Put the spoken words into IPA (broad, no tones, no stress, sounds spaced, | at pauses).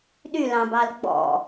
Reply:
ɗ y l ɑ̃ b ɑ l ɡ͡b ɔ̰